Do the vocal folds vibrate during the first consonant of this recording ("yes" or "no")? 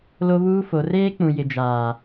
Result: yes